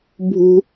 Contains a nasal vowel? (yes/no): no